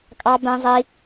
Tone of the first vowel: high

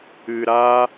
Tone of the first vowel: low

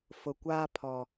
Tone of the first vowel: low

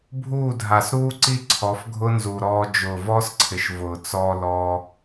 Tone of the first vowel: falling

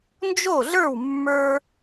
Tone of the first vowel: falling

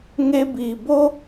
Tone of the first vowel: high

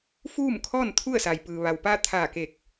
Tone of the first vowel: falling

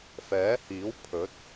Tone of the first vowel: rising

